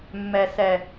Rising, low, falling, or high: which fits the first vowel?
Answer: low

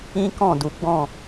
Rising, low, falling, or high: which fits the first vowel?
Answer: high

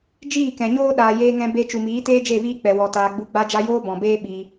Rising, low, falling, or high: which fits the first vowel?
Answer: falling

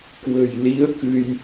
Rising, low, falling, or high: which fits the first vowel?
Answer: low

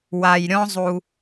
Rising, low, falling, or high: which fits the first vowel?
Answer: low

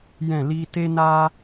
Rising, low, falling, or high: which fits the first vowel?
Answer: falling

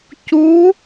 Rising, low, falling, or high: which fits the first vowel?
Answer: rising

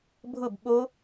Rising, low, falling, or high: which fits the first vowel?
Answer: falling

